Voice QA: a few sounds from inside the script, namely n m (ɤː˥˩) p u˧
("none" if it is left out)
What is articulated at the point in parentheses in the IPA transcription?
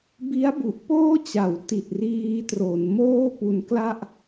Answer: oː˥˩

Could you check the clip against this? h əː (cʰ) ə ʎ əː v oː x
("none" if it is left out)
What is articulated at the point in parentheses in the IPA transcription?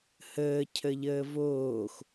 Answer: cʰ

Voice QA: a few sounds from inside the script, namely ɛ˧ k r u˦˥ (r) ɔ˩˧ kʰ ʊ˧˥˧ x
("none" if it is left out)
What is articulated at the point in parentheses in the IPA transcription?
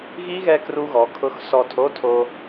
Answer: ɣ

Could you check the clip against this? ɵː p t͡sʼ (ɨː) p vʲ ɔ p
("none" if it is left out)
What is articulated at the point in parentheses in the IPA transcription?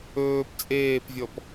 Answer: eː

